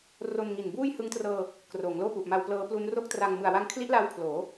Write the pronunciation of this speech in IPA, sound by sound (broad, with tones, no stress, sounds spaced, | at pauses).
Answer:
r o˧ n ŋ i˨˩ n b uː˥˩ j h ɯ˦˥ ŋ t r ɤː˧ | k r oː˩˦ ŋ l oː˥˩ p u˨˩ ʔ m a˧ w p l ɤː˦˥ p l u˦˥ n r o˥˩ k̚ t r a˧ ŋ m ɯ˨˩ a̯ w a˧ ŋ kʰ l i˦˥ ʔ l a˧ w kʰ l oː˩˦